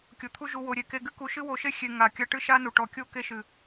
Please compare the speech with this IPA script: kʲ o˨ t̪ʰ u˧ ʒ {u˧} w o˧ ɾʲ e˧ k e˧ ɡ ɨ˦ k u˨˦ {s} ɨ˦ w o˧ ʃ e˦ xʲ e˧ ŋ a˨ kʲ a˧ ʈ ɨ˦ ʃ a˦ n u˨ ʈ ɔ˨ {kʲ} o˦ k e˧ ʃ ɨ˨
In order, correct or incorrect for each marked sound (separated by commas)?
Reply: correct, incorrect, correct